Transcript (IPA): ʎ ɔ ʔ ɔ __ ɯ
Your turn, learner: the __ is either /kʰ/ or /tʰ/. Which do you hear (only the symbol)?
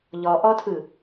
tʰ